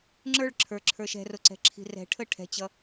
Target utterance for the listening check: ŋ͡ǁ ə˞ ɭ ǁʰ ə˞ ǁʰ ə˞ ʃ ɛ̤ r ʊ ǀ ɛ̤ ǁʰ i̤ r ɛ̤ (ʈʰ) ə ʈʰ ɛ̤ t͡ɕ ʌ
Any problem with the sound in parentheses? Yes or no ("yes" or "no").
no